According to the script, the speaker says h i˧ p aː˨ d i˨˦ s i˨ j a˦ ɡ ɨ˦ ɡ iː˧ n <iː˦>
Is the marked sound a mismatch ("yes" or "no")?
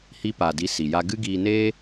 yes